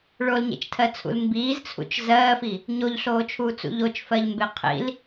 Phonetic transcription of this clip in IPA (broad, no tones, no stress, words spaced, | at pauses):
ɭolɲḛt͡ʃtʰɜt͡sʰṵl mbiːzt͡sʰṵt͡ʃ zɜːfi | ɲoʎɬoːt͡ʃʰuːt͡sṵ ʎot͡ʃfɜʎmbe qʰḭl